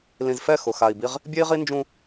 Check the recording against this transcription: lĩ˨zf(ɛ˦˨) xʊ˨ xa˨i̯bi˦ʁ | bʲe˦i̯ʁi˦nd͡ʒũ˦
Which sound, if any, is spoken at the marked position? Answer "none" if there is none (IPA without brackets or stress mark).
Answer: ɛ˦˨